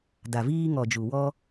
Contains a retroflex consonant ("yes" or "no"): no